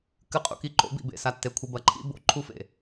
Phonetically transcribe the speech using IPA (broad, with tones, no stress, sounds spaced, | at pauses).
k ɨ˨ qʼ ṵ˨ k i˨ ǃ o̰˨˦ b ḭ˨ b ḛ˨ s a˨ tː e˨ kʷʰ ɨ˨ b ɐ˨ ǃʰ ḭ˦ b o̰˦ ǃʰ u˦ f ḛ˨